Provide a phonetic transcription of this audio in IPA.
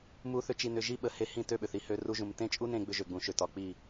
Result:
mu˧θʏ˧ t͡ʃi˧nʏ˧ʒi˦ɓə˨ he˧hĩ˦˨ tø˦˨ɓʏ˨θi˨ hø˧ru˧ʒũ˨m tẽ˦t͡ʃʼu˦nẽ˧ ɡ͡bʏ˧ʒø˨ɡ͡bũ˨ʃø˨ tɒ˨k͡pi˦˨

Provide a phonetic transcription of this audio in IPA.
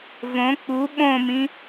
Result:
võ k͡pu ɓõmĩ

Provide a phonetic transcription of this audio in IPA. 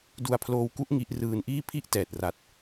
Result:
du˧a̯pʰloː˧wku˦˥ʔ ŋi˦˥ʔrɯː˧nʔiː˥˩ pʰi˥˩ʔtɛː˨˩t̚ ra˨˩t̚

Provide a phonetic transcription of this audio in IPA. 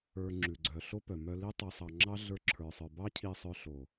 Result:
ə˞˧ŋ͡ǁʉ˨ɡ͡ǀœ˨ ɬo˦pœ˨mœ˧ li˦tˤi˧sˤɑ˧ŋ͡ǁɑ˦ ɮə˞˦ǁʰə˞˧sˤə˞˧ bɑ˦cʰi˧sˤœ˧ɬo˨

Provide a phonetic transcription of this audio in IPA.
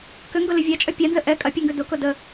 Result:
kʏŋɡʊlʏ vʲat͡ʃʼœ pʲanzə ʔɛ kʼɐpʲuŋɡʏ dʊkʊ də

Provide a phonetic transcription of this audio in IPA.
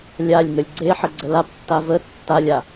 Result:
lʲalʲŋəlʲ ɡ͡ǀe ħəɡ͡ǀəlaptːa və tːalʲa

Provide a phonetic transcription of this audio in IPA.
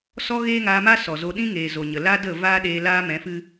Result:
sɔ˦ɣeː˦ŋaː˧ma˦ sɔ˨zo˧ ɗĩ˦ŋeː˨ zo˨ɲə˨ la˦ də˦˨vaː˦ɗeː˧ laː˦mɛ̃˨˦fɨ˦

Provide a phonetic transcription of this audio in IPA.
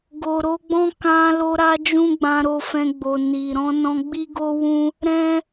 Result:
ɡo˨ɾo˧ɡ͡bɔ̃˦ kã˧lo˧ɾa˧ d͡ʒũ˦ɡ͡bã˧ɾo˧fɛ̃˧ ɡ͡bo˨ ni˨ɾɔ̃˧ nɔ̃˧ɡ͡bi˦ɡo˦wũ˦ | ɾɛ̃˦

